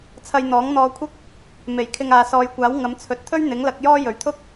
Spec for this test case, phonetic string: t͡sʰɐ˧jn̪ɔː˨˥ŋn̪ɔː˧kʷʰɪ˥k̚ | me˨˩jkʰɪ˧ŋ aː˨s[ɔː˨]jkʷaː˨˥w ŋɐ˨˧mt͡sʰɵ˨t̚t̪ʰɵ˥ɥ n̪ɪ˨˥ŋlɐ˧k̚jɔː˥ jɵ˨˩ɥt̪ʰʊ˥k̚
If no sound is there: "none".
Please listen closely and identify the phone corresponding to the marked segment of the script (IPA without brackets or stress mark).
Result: ɔː˨